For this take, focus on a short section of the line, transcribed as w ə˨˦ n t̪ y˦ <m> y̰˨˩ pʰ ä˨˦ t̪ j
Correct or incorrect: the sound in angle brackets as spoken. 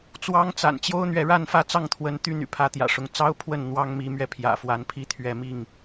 incorrect: n̪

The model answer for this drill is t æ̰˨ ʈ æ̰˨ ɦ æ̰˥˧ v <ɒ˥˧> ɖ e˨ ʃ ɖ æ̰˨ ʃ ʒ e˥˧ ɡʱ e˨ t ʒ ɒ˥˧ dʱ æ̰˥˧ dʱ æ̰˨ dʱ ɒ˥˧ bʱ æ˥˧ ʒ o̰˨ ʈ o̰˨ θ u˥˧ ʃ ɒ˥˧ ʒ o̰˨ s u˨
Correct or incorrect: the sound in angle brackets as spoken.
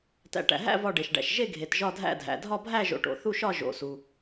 correct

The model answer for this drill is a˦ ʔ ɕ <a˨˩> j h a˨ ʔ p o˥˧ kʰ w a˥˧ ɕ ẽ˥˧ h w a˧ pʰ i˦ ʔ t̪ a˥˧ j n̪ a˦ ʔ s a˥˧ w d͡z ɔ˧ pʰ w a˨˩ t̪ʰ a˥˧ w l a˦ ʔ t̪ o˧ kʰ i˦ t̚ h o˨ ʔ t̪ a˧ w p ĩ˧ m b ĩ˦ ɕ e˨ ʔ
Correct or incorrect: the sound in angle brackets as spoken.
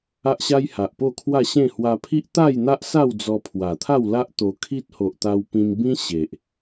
incorrect: a˦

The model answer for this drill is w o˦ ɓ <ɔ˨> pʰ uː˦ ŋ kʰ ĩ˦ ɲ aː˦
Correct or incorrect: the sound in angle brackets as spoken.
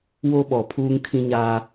correct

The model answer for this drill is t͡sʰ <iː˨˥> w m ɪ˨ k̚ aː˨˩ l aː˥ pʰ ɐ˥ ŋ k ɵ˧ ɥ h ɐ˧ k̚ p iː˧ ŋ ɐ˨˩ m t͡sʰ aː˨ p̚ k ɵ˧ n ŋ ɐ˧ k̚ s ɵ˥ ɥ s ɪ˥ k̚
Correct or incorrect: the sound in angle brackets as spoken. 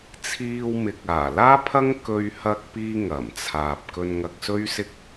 incorrect: iː˧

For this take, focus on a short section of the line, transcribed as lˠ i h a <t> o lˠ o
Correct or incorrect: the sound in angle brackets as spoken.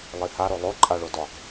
incorrect: ɾ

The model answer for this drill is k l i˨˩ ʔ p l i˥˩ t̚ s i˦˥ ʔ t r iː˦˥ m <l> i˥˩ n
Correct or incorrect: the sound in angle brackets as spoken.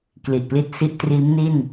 incorrect: n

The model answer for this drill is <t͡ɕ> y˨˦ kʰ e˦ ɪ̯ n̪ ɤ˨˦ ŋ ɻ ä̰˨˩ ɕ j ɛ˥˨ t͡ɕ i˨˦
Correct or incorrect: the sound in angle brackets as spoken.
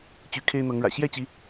correct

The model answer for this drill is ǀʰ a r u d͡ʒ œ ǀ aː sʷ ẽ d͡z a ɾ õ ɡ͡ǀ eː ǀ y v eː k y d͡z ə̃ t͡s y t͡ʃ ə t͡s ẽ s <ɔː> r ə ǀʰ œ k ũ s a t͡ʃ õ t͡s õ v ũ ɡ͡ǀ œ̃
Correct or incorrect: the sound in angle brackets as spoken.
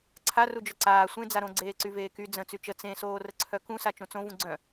incorrect: oː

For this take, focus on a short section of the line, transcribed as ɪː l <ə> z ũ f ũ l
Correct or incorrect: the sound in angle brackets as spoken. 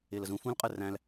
correct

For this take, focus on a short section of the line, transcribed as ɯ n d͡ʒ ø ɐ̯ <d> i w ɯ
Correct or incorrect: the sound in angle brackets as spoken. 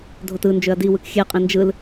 correct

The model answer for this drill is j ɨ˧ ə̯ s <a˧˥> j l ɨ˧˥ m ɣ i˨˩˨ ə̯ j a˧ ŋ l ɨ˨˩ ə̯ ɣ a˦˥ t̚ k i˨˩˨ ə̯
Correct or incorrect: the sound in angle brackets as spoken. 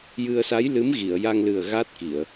correct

